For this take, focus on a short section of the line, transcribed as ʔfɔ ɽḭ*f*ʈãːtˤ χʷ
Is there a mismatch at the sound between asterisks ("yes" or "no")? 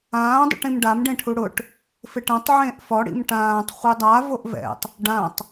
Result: yes